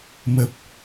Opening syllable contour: low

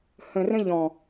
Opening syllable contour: low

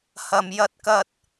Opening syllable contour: low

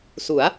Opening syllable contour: rising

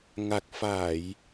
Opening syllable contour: low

